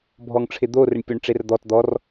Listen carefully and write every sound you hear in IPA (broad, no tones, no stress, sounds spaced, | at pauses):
bʱ ɔ ŋ ʈ͡ʂʰ ɪ d̪ o r ɪ ɳ pʲ o ɳ ʈ͡ʂ e r d̪ ɔ t d̪ ɔ r